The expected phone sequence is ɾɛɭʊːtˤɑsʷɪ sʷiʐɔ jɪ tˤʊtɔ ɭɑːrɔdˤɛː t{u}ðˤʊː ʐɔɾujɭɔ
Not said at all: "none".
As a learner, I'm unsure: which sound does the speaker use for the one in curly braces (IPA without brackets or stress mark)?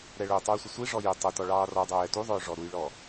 u